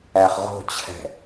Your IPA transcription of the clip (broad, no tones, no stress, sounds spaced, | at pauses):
æ χ ʁ o̤ t͡ɕʰ ɛ̤